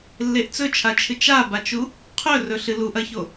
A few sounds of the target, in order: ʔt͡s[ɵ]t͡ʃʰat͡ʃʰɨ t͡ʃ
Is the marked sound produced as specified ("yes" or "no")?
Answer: yes